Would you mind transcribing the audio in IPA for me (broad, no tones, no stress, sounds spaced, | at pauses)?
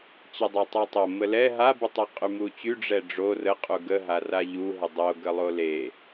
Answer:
t͡ɕ ə dˤ ɛ tˤ u tˤ o m ə l ɛ ɦ a b u tˤ e qʼ y m u t͡ɕ y ɖ͡ʐ ɛ ɖ͡ʐ o r ə qʼ u ɡ ə ɦ a r a ʎ u ɦ ə dˤ o ɡ ə lˠ o l e